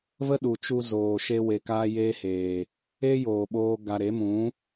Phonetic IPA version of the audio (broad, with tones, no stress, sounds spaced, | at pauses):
v ə˦ ɗ u˨ t͡ʃ u˧ z oː˨ ʃ e˧ w e˧ k aː˦ j eː˦ h eː˨ | eː˦ j oː˨ ɓ oː˧ ɡ a˧ ɾ e˨˦ m ũ˨˦